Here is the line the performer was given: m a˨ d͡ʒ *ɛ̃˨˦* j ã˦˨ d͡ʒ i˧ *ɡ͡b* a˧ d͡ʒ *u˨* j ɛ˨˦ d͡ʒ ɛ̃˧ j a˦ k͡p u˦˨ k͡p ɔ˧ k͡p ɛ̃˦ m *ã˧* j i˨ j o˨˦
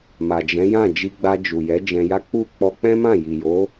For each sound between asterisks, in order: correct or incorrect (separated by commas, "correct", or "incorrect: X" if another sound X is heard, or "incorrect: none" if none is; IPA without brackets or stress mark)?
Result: correct, correct, correct, incorrect: ã˦˨